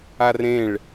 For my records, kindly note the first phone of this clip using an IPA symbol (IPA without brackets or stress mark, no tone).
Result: a